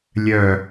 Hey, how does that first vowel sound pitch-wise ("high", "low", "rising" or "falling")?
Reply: falling